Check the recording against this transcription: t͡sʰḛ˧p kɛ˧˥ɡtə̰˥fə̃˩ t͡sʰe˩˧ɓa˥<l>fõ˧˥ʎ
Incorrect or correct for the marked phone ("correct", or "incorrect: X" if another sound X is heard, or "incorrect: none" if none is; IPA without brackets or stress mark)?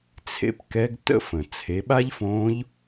incorrect: ʎ